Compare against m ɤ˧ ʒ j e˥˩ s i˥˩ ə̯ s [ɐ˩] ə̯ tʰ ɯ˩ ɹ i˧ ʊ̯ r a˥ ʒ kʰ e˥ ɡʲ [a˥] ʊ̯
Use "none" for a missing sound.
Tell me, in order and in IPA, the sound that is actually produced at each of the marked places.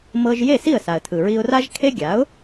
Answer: a˩, a˩˥

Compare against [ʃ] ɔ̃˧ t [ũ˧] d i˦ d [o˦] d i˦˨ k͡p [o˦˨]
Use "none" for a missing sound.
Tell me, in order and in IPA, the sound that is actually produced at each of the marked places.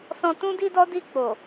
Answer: s, ũ˦, ɔ˦, o˨

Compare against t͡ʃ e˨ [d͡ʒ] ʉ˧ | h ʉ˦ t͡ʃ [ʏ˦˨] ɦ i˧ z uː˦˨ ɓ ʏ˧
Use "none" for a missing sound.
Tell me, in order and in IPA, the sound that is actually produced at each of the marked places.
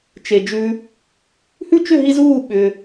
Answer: d͡ʒ, ʏ˦˨

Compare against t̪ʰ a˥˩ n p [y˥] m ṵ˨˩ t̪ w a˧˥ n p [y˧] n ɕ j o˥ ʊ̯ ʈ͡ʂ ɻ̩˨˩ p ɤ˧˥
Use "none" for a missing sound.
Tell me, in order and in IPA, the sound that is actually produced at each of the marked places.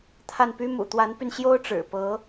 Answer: y˥, y˧

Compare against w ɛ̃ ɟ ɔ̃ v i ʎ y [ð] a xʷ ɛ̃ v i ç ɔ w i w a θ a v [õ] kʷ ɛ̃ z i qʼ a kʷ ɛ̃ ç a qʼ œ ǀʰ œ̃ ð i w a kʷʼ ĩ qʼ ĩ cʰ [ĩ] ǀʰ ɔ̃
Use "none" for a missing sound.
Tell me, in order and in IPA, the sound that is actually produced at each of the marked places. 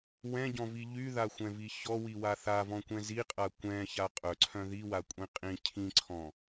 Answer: ð, ɔ̃, ĩ

